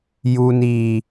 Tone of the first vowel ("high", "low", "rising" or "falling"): high